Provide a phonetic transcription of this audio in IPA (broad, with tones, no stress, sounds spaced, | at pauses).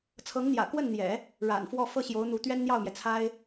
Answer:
t͡sʰ ɤ˧˥ ŋ n̪ j ä̰˨˩ k w ə˥˩ n n̪ j ɛ̰˨˩˦ | ɻ a̰˨˩ n f w ɔ˥˧ f ɤ˥˩ ɕ j o˧˥ ʊ̯ n̪ u˧˥ t̪ ɥ ɛ˥ n n̪ j ɑ˥˩ ʊ̯ m j ɛ˩ t͡sʰ a˥ ɪ̯